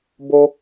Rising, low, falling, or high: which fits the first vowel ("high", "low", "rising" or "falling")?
high